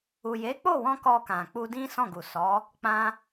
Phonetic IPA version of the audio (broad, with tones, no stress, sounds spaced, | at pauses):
u˨ j e˨˦ k͡p o˦˨ w ɔ̃˧ k ɔ˧ k ã˨ k͡p u˧ d ĩ˦ s ɔ̃˦˨ ɡ u˨ s ɔ˨˦ | k͡p ã˧